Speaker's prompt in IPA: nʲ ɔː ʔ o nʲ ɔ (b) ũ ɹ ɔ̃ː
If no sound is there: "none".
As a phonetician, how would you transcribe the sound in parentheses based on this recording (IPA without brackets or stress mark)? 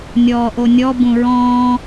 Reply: b